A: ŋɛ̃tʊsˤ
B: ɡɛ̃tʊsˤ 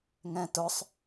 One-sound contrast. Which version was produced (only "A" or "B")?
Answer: A